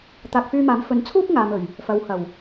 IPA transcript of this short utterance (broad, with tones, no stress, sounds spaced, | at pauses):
t̪ aː˨ k̚ f yː˧ m aː˨˥ m f ɵ˨˥ n t͡sʰ uː˥ k̚ ŋ aː˨ m ɵ˨˩ ɥ | f ɐ˨˧ w h ɐ˨˩ w